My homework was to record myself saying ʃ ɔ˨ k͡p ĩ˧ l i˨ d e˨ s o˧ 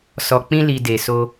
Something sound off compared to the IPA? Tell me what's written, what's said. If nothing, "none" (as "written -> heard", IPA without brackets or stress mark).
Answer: ʃ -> s